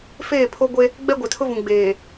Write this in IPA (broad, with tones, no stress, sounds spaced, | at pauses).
f eː˦˨ pʰ o˦ ɡʷ e˦ | ɡ͡b ɛ˦ ɡʷ ɛ˨ tʰ ʊ˦ v ũ˨ ɡ͡b eː˨